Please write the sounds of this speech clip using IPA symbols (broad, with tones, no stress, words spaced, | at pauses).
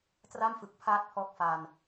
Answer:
tra˥˩mfɯ˨˩k̚pʰaː˦˥t̚ pʰɔː˦˥k̚fa˧n